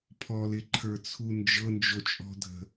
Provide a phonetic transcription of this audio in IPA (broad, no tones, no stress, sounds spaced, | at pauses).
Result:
pʰ ɔ l ɪ ǃʰ ə˞ t͡sʰ u n d͡ʒ ɤ n d͡ʒ o t͡ʃʼ ɔ̤ dʱ ə̤